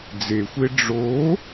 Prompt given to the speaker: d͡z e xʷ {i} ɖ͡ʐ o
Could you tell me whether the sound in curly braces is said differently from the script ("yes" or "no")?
yes